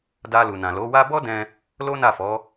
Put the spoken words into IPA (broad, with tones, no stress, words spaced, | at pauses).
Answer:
da˧lu˨nã˨ lo˨˦wa˦ bɔ˦dɛ̃˧ | lo˦na˦˨fɔ˨˦